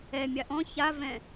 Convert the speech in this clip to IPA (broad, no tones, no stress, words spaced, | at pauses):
ɛmʲa ʔɔ̃ çavɛ̃